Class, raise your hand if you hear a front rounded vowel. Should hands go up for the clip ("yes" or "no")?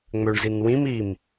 yes